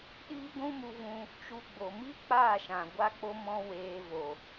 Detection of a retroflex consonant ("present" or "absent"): absent